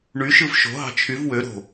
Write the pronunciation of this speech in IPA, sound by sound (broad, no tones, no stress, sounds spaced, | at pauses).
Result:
ɳ y ʃ ɯ v ʃ o̤ ɦ ɑ̤ t͡ʃʰ y v w ø ɾ o̤